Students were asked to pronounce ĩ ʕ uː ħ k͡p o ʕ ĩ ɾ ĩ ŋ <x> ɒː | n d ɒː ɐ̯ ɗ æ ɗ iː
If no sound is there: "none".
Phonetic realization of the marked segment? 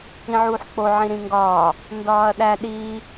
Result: ɡ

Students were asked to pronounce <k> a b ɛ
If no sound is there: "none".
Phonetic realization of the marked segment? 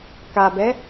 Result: k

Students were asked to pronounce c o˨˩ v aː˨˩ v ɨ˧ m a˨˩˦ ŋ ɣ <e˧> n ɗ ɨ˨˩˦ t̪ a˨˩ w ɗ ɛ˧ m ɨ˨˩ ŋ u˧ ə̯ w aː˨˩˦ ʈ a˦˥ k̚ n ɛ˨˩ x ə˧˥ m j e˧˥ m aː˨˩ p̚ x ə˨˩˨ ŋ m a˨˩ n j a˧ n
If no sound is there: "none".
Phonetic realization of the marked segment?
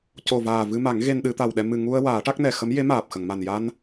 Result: e˧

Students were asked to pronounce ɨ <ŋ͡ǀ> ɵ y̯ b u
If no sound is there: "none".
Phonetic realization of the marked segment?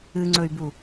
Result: ŋ͡ǀ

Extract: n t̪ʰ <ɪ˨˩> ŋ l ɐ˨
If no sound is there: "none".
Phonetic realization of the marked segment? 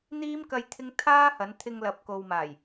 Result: ɪ˧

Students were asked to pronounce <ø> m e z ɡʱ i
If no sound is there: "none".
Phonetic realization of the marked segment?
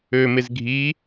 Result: ø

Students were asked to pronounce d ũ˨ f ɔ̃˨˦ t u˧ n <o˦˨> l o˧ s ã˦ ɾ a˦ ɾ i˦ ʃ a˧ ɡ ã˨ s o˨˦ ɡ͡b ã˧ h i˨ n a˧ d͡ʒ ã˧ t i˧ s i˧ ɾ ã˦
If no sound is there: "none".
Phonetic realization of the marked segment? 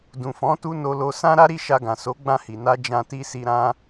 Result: o˧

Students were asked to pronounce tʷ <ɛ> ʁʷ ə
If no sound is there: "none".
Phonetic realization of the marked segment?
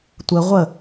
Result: ə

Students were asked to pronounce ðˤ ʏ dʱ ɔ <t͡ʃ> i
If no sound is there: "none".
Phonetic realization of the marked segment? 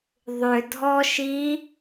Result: ʃ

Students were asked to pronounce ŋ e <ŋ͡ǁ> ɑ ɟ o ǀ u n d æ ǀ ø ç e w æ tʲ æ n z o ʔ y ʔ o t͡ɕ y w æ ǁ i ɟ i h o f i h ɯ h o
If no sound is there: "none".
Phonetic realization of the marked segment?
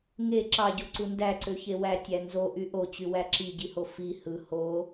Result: ǁ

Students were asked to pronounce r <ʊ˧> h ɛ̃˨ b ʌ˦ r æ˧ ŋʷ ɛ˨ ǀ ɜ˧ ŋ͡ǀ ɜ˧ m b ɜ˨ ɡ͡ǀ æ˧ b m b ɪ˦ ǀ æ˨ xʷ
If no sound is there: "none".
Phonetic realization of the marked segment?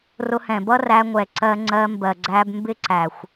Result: ʊ˧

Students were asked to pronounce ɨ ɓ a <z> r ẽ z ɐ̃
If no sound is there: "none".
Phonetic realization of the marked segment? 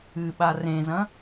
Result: none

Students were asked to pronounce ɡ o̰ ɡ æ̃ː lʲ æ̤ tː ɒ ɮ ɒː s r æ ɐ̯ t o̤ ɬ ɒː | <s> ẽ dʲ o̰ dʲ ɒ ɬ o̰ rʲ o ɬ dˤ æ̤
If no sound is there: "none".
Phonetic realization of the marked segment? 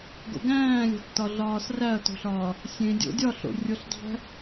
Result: sʲ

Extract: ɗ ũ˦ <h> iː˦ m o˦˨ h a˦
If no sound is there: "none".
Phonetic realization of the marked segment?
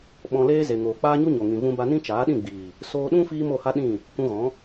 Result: f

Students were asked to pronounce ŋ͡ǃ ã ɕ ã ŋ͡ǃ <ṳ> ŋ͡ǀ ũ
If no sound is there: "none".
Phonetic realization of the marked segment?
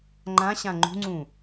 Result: ṳ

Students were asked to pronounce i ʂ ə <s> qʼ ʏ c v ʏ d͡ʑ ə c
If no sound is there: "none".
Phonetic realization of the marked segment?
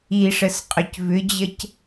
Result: s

